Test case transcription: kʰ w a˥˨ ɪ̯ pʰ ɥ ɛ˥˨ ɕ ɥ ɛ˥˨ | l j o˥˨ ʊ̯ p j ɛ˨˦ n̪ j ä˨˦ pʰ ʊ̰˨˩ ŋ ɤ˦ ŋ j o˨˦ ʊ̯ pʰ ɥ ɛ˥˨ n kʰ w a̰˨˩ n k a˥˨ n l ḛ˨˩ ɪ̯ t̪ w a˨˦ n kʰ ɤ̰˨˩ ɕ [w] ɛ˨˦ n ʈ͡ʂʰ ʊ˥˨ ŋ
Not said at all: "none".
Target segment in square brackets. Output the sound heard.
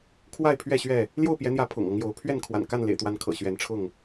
ɥ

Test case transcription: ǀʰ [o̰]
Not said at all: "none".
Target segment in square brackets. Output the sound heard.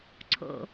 o̰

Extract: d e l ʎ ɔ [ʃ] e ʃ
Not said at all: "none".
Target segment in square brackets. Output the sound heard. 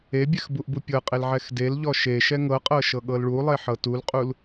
ʃ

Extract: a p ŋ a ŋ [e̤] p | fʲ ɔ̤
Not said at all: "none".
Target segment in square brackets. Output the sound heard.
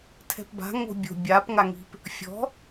i̤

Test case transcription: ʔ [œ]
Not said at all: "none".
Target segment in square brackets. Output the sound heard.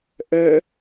œ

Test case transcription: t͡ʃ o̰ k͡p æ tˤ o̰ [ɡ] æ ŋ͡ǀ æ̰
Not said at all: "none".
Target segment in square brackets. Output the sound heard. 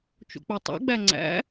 ɡ͡b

